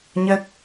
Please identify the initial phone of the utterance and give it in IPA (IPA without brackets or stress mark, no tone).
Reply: ɲ